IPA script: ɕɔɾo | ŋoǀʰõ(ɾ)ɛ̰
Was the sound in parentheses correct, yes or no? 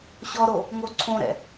yes